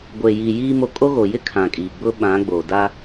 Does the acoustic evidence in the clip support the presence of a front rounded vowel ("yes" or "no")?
no